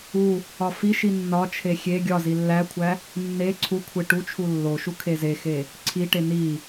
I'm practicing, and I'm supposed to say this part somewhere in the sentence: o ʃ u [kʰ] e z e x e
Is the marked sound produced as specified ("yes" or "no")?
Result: yes